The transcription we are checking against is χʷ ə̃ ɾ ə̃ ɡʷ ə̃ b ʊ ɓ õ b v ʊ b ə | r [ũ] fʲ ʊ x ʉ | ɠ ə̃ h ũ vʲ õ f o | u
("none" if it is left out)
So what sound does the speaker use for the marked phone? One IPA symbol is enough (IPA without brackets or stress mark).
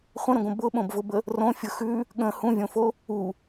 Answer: õ